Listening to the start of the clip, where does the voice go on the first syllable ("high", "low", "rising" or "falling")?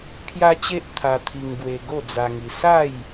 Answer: high